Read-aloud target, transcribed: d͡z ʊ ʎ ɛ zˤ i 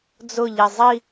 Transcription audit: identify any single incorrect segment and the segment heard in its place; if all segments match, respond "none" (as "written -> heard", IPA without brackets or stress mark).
none